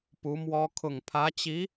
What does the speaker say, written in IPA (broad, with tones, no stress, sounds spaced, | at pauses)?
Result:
p u˧˥ m w ɔ˥ kʰ ʊ˨˩ ŋ pʰ ä˧˥ t͡ɕ i˧˥